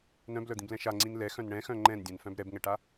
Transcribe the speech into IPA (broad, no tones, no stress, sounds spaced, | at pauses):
n œ̃ b l œ d̪ ĩ b l ɛ̃ ʃ a ŋ͡ǀ ĩ n l ɛ x œ̃ n ɳ ɛ̃ x œ̃ ŋ͡ǃ ɛ̃ n dʲ ɛ̃ n f œ̃ b ɾ ɛ b ŋ ɛ ʈ a